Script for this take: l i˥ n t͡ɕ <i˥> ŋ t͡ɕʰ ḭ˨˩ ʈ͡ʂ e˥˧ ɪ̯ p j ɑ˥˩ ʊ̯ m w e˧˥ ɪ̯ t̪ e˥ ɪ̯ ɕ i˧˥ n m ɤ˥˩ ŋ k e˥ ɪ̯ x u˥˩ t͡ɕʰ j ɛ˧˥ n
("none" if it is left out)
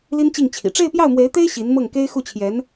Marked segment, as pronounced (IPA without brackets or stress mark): i˥˩